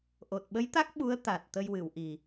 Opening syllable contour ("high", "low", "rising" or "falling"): low